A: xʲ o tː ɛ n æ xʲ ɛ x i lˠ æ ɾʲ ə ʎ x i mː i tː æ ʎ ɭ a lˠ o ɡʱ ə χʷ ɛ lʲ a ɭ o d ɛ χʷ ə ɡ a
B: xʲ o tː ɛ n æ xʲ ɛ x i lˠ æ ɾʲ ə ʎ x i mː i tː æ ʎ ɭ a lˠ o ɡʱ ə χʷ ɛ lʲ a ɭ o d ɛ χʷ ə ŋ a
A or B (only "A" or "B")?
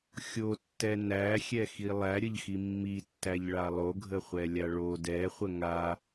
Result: B